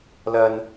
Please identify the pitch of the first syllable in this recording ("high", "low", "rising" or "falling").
high